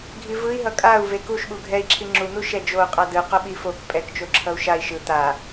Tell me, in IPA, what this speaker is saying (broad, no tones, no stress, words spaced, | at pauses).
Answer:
ɡʱivɯi̯ ɦʌkʼau̯vek uʃɓu ɡʱɛi̯ǁʰi ŋ͡ǁun̪u ʃɛd͡ʒou̯ qʼadɯqo ɓifok pʼɛk t͡ʃoǁʰʌu̯ʃai̯ ʃɯ t̪a